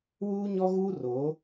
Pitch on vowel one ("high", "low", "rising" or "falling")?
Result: high